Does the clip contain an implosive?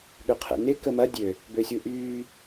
yes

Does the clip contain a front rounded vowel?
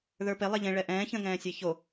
no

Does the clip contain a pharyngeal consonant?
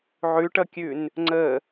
yes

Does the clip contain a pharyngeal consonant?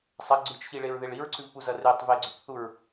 no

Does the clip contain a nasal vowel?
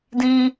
yes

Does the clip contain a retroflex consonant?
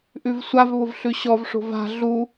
yes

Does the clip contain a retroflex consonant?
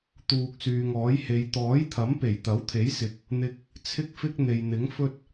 no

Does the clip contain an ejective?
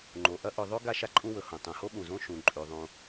yes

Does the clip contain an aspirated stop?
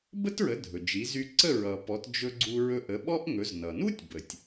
no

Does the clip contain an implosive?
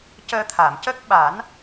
yes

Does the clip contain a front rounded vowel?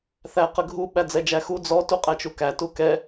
no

